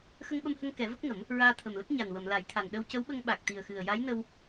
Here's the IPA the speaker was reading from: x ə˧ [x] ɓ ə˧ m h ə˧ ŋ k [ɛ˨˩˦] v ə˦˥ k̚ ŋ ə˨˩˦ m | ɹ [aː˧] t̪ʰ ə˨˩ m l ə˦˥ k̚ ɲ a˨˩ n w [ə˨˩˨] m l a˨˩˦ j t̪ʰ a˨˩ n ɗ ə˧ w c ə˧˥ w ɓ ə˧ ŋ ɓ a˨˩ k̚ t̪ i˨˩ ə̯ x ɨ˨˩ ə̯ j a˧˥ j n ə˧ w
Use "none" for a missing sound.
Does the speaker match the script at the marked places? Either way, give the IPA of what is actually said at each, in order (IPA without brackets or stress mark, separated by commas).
ŋ, ɛ˨˩˦, aː˧, ə˨˩˨